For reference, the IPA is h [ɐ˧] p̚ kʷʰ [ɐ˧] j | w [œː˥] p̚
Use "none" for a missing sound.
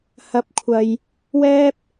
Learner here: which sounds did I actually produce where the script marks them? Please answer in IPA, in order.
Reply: ɐ˧, ɐ˧, ɛː˥

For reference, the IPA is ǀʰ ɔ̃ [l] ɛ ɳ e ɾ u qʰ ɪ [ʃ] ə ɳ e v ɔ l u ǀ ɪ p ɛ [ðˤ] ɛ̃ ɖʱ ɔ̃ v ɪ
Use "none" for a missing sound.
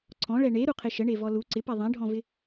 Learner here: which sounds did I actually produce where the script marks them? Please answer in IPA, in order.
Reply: ɭ, ʃ, ðˤ

